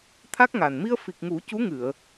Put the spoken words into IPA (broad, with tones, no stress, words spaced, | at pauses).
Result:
t̪ʰa˦˥k̚ŋa˨˩n mi˧ə̯fi˨˩k̚ŋu˨˩˦ cu˧˥ŋɨ˨˩˨ə̯